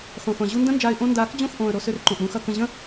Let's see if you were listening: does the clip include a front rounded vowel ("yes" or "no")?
yes